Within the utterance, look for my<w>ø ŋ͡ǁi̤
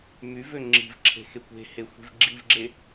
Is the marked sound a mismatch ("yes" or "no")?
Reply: yes